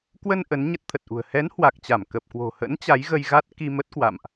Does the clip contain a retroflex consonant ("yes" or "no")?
no